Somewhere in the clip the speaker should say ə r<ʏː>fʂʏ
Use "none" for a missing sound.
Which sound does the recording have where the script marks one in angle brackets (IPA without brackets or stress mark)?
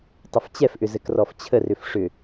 ʏ